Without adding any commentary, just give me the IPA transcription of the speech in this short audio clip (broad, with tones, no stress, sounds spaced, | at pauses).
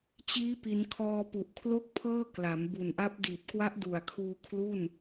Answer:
t͡ɕ iː˦˥ p i˩˦ n kʰ ɔː˧ p u˨˩ ʔ kʰ l o˥˩ k̚ pʰ ɤː˥˩ k l a˩˦ m b u˨˩ n ʔ a˦˥ p̚ d iː˨˩ p̚ k w a˦˥ ʔ d u˨˩ a̯ kʰ uː˧ kʰ l u˥˩ n